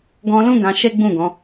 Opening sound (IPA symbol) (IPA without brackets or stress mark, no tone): ɡ